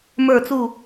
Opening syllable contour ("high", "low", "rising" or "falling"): falling